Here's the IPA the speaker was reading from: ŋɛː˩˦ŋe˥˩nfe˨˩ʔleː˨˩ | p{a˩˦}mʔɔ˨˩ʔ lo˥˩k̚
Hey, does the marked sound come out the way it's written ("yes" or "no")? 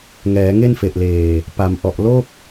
yes